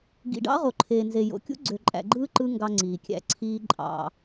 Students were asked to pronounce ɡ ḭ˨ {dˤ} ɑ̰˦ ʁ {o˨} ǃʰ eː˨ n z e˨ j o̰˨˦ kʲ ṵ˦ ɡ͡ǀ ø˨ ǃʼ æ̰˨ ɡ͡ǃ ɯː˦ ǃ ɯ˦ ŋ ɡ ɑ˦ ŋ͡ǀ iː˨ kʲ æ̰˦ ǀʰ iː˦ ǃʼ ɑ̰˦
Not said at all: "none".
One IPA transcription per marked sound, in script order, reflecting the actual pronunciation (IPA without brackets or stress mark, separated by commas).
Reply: ɖ, o˨